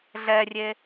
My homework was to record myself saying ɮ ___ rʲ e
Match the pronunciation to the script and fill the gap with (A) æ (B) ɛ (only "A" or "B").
B